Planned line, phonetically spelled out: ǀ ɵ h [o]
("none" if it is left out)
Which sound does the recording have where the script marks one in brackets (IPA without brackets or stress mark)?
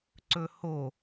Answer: o